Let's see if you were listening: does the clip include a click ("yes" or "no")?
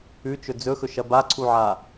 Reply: yes